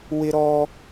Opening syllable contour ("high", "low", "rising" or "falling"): high